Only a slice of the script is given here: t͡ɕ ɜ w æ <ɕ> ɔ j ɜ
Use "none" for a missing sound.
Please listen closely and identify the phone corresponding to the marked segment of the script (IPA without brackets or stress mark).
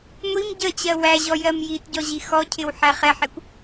ʑ